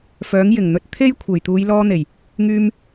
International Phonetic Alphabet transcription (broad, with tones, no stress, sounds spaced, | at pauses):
f œː˨˥ ŋ j ɪ˨˩ ŋ n̪ ɵ˧ t̚ t̪ʰ e˥ j kʷʰ e˨˩ j t̪ uː˨˧ j l ɔː˧ n̪ e˨˩ j | ŋ yː˧ m